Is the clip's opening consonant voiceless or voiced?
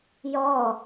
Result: voiced